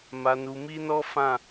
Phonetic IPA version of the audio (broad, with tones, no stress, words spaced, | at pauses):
ma˨nu˨mi˧nɔ˦ fã˦˨